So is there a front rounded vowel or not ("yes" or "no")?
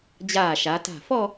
no